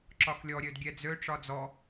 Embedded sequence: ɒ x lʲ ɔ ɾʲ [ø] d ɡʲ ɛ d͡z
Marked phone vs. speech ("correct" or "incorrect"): correct